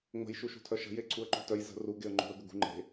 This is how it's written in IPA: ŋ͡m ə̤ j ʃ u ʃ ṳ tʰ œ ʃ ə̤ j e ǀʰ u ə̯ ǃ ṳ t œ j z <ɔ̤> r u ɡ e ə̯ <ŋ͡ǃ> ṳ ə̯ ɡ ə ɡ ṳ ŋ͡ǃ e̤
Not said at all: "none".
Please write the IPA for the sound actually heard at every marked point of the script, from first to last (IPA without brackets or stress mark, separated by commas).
ə̤, ŋ͡ǃ